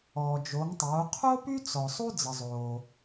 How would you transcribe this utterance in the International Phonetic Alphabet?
ɔː˩ d͡ʒ o˩˧ ŋ tˤ oː˩˧ qʰ o˥ p y˥ t͡s ɔ˩ sˤ u˥ d͡z ə˩ zˤ oː˩

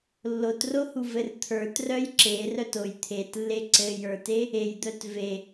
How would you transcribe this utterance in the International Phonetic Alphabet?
lː o t r o h u v ɘ r t̪ʰ ə˞ t r œ j ǁ e r œ t o j t̪ʰ e t lː e ǀ ɘ j ə˞ t e | e j d̪ œ t v e

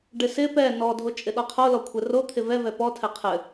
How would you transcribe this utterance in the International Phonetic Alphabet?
ɖ ɪ s ɪ p ɛ n ɔ dʱ o t͡ʃʼ ɪ ɗ ɔ qʰ o l ɔ kʷʰ ɘ r o t̪ʰ ɪ v ɛ v ɛ p ɔ tʰ ɛ qʰ ɘ

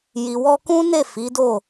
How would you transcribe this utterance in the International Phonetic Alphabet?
j i˨ w ɔ˧ k ũ˦ n e˦˨ f i˨˦ d o˦˨

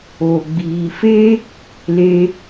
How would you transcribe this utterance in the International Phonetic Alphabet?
o˨ ɡ͡b iː˨ f e˦ | l e˧

